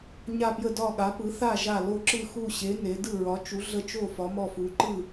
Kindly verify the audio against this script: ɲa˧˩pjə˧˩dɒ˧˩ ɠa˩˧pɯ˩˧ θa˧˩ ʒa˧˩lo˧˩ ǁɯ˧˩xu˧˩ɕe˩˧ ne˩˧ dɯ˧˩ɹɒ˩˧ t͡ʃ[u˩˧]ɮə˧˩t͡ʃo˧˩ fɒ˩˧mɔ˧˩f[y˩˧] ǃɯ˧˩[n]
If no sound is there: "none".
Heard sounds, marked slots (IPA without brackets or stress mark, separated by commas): u˩˧, u˩˧, none